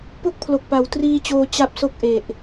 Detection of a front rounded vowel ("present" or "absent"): absent